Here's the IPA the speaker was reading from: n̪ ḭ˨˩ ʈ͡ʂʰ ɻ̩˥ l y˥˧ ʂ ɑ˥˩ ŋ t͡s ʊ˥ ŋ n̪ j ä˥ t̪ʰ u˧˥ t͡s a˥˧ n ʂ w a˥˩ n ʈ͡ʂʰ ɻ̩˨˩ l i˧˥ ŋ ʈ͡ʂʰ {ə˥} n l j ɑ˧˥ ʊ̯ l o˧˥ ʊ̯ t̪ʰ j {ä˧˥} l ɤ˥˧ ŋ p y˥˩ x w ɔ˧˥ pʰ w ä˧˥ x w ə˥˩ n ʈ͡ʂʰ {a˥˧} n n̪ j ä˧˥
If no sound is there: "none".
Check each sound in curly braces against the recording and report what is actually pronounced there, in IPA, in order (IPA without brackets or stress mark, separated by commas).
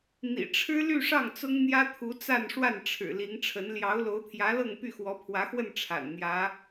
ə˧˥, ä˧˥, a̰˨˩